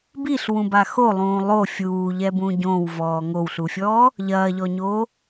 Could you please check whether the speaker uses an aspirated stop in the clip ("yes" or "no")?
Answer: no